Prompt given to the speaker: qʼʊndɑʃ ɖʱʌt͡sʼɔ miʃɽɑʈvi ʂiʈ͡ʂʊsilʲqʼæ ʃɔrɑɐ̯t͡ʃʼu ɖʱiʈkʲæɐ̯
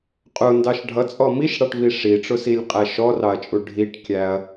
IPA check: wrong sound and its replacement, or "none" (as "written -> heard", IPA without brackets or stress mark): none